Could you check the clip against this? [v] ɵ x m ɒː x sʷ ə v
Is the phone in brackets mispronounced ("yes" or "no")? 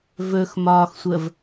no